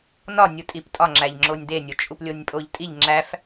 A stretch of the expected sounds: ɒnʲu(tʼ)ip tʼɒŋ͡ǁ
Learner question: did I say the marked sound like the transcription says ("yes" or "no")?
yes